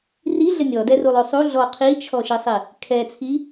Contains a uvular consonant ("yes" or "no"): yes